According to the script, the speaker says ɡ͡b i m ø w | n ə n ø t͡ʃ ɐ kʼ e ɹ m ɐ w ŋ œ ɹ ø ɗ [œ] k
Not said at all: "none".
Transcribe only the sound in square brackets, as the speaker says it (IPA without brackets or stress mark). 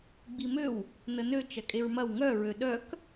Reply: œ